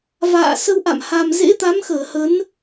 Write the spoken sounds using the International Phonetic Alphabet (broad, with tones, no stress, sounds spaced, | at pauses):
v a̰ː˧˨ s ə˧ w ʔ a̰˧˨ m h a˨˩ m z ḛ˧˥ t̪ a˨˦ m x əː˧˩ h ə˨˦ n